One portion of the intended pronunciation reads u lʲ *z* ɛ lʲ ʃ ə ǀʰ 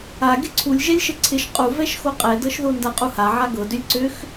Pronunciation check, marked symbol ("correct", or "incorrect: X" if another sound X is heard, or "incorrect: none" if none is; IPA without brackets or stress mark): incorrect: ʒ